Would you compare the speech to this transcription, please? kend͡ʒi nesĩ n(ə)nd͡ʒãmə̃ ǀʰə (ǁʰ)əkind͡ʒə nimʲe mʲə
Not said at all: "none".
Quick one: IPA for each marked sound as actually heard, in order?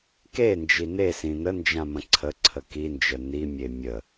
ə, ǀʰ

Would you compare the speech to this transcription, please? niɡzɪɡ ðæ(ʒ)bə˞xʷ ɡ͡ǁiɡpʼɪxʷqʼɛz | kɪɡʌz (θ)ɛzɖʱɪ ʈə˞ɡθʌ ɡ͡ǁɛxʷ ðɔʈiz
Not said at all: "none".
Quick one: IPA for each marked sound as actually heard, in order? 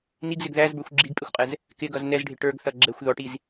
z, n

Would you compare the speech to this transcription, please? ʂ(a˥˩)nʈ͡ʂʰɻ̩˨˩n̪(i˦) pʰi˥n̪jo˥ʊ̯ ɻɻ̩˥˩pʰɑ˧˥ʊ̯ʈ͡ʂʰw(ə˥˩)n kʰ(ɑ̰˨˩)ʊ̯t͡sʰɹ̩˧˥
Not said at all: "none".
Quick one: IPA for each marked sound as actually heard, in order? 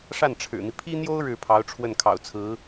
a˥˩, i˦, ə˥˩, ɑ̰˨˩

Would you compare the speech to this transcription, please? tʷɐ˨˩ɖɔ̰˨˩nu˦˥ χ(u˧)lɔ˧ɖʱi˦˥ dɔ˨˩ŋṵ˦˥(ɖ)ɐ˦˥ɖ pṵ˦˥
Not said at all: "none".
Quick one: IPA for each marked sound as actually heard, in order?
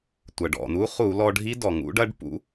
u˧˩˧, ɖ

